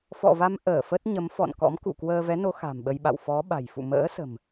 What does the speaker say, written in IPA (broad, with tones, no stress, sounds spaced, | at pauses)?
f ɔ̰˧˨ v a˧ m ʔ əː˧˩ f ə˦˥ t̚ ɲ ə˨˦ m f ɔ̰˧˨ n k ɔ̰˧˥ m k ṵ˧˨ k w əː˧ v ɛ˨˦ n o˨˦ x a̤˨˩ m ɓ ə˧ j ɓ a̰˧˨ w f ɔ˨˦ ɓ a̤˨˩ j f ṵ˧˨ m ə̰ː˧˥ s ə̤˨˩ m